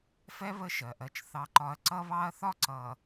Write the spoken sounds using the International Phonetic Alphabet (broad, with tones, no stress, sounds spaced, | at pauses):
f ɛ˦ β ə˦ ʃ ɜ˨ ʔ ɜ˨ t͡ʃ θ ɑ˦ ǃ ɒ˦ ɐ̯ ǀ ʌ˦ β ɑ˦ ɐ̯ θ ɒ˦ ǀ ʌ˨